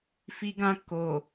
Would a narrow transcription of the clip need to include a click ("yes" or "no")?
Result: no